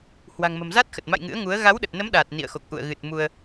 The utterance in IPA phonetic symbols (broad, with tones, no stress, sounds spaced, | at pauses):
h w a̤˨˩ ŋ m ə̤˨˩ m z a˦˥ t̚ x ə˨˩ t̚ m a̰˧˨ j ŋ ɨ̰˧˥ ə̯ ŋ u˨˦ ə̯ ɣ a˨˦ w ɗ ə˨˩ t̚ n ə˨˦ m ɗ aː˨˩ t̚ n ḭ˧˨ ə̯ x o˨˩ k̚ ʔ ṵ˧˨ ə̯ ɣ ɨ˨˩ t̚ m u˧ ə̯